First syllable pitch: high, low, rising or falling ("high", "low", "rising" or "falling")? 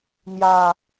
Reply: low